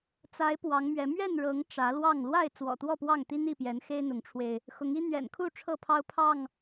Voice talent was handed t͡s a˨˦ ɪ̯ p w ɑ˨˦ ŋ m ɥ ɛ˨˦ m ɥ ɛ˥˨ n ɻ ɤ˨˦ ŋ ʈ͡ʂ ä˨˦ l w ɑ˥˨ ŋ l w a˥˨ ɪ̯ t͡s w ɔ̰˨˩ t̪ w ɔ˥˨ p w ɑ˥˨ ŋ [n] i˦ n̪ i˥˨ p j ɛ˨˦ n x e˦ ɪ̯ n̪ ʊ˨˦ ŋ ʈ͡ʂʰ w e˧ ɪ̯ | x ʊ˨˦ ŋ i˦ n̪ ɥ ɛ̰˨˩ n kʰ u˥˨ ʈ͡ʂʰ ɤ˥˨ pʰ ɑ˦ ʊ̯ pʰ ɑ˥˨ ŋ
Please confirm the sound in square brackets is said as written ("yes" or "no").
no